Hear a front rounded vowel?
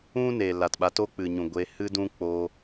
no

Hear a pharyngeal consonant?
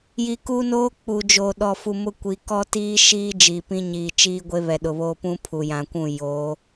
no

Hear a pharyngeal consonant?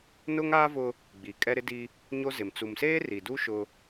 no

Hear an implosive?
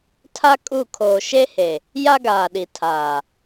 yes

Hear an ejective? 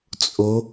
yes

